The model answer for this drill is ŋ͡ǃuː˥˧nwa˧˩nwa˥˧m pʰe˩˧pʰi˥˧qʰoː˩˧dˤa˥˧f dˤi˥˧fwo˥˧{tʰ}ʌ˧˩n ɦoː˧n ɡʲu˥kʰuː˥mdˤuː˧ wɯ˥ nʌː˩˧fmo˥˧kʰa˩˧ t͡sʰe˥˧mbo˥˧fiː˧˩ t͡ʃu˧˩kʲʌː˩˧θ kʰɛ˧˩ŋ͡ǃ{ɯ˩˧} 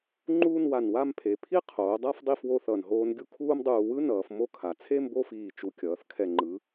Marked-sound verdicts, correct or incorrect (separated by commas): incorrect, correct